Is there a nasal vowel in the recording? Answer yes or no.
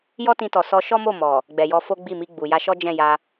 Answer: yes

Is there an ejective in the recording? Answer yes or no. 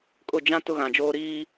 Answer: yes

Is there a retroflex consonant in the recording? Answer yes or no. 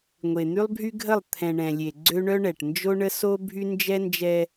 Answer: yes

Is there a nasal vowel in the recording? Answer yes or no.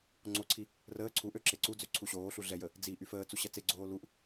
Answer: no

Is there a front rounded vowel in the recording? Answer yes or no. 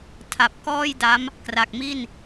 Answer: no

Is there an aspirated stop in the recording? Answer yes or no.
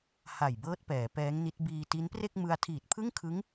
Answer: yes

